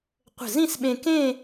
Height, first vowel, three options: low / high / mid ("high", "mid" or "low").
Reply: mid